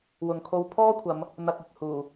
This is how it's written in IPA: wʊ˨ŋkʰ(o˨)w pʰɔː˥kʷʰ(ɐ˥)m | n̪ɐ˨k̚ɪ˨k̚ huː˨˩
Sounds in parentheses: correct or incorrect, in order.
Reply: incorrect, incorrect

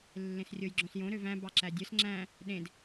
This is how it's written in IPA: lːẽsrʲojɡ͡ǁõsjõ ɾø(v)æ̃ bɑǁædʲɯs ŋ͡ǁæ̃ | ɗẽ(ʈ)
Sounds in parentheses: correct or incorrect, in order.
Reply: correct, incorrect

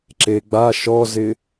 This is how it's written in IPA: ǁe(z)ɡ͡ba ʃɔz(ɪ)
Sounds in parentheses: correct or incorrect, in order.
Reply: incorrect, correct

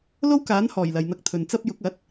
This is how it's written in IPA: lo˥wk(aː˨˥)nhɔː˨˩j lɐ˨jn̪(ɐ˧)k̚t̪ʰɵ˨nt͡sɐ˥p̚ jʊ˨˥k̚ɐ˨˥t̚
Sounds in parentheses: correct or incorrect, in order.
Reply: correct, correct

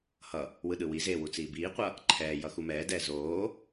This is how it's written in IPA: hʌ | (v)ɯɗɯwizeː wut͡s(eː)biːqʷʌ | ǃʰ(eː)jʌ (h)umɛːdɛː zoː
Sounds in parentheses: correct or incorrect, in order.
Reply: incorrect, incorrect, incorrect, incorrect

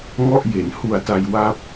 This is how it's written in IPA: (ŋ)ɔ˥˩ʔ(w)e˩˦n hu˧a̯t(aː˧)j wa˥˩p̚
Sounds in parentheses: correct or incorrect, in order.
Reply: correct, incorrect, incorrect

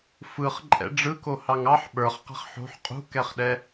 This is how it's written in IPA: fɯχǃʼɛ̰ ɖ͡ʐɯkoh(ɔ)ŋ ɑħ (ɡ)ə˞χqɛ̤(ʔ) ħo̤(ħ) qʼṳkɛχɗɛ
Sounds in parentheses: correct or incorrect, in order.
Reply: incorrect, incorrect, incorrect, correct

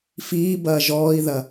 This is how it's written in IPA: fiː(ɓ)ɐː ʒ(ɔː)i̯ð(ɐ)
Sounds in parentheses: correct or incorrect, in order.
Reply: incorrect, correct, correct

